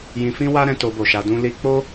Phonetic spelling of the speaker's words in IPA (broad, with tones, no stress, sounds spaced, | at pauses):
j ĩ˧ f ĩ˦ w a˦ ɾ ɛ̃˧ t o˧ b o˨ ʃ a˧ d ũ˦ l i˧ k͡p o˦